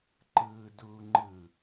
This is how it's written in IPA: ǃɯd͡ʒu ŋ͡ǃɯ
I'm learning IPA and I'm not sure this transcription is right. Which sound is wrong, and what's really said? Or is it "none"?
d͡ʒ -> d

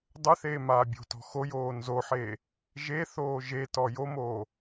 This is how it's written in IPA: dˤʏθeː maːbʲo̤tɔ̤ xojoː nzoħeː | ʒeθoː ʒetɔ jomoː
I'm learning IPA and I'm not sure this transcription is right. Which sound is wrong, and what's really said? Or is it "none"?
none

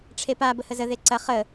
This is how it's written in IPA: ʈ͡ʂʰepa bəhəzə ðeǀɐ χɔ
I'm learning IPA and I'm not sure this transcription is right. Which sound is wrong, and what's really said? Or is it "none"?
ɔ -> ə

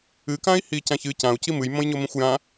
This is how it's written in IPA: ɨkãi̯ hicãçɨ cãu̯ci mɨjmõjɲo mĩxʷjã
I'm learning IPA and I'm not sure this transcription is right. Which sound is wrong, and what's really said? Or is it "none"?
none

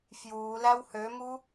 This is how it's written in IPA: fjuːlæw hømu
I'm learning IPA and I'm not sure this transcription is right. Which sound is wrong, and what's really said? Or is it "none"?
none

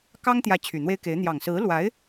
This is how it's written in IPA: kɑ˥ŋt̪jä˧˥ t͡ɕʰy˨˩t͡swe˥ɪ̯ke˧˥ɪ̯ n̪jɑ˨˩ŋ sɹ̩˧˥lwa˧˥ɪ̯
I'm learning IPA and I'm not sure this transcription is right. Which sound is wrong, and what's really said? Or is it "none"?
t͡s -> n̪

